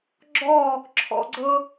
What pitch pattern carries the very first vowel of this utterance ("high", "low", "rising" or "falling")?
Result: falling